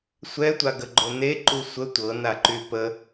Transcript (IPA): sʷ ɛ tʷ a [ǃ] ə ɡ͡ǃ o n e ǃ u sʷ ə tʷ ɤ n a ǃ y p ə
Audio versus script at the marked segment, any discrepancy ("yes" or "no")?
yes